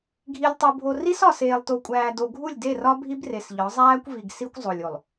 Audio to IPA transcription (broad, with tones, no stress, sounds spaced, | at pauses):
ɡʱ i˨ lʲ tˤ u˨ bʱ o˨ r i˦ s ɒ˨ s eː˨ lˠ t o˨ kʷʼ æː˨ d o˨ ɡʱ u˦˨ lʲ d e˦˨ r ɒ˦ bʱ i˦ b r e˨ s ʎ ɒ˨˦ zˤ æː˦ kʷ v i˨ ɡ s i˦ kʷ zˤ o˨ lʲ o˨ lˠ